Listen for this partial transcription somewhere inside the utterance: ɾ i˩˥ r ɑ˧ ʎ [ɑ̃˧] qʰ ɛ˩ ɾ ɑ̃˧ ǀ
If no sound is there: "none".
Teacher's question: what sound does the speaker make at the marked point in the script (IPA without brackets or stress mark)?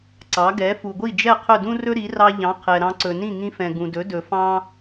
ɑ̃˩˥